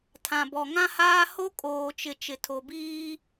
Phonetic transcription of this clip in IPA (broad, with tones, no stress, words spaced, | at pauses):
tʰã˨bɔ˨ŋã˦haː˦ ho˦kʼoː˨t͡ʃɪ˨ t͡ʃɪ˨tʰo˨biː˦